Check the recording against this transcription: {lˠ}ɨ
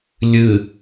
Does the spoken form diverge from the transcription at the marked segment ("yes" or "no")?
yes